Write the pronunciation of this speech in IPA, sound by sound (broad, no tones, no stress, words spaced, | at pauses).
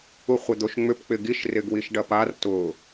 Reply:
uχʷɪd̪oʃŋ͡mʏp k͡pɪɡiʃ rɪɡwiʃɖɐpar tʊ